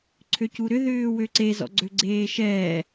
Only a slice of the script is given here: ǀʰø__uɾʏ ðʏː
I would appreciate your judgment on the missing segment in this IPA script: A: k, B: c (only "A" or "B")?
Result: B